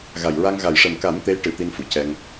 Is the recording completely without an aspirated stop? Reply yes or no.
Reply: yes